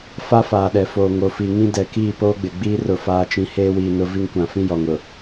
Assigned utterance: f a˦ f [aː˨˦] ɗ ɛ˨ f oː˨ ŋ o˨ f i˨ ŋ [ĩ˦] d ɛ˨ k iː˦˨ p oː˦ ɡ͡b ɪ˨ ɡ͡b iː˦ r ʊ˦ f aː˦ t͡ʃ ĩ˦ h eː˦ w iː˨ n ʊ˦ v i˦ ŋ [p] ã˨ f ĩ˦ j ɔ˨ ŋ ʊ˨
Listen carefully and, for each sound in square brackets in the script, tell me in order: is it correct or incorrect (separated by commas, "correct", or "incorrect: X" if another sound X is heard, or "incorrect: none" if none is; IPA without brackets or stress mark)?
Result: incorrect: aː˨, correct, incorrect: kʷ